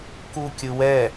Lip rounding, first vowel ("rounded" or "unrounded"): rounded